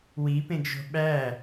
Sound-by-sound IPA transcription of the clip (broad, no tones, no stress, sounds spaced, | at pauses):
w i p ẽ ɡ ʒ o̤ ɓ æ